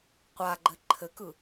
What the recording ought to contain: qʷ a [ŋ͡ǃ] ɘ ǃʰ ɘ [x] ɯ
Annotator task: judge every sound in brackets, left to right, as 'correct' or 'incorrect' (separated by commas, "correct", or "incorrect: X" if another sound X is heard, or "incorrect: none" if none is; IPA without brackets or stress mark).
incorrect: ɡ͡ǃ, incorrect: k